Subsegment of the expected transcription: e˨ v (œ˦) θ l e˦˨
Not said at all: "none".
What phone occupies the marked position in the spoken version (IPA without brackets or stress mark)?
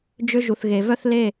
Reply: œ˦